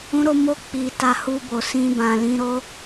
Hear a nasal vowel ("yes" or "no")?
yes